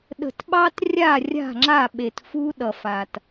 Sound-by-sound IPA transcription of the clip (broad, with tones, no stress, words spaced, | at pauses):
ɗə̤˨tɓɑ˦t rʲa˦˨rʲa̤˦˨ŋ͡ǁa˦˨ɓe˨t fu˦ɗʌ˨fa˨t